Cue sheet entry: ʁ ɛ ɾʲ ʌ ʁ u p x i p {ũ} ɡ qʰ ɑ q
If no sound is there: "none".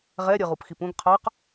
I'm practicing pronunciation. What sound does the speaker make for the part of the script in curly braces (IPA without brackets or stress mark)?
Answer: ũ